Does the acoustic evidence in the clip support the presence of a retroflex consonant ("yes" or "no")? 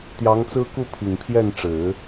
yes